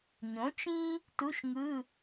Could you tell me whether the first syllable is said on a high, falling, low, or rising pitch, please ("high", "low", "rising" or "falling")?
rising